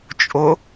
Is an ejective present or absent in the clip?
present